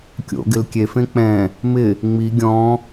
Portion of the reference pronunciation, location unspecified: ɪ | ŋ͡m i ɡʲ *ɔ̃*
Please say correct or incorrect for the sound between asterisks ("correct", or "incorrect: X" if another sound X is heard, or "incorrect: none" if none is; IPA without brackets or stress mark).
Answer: correct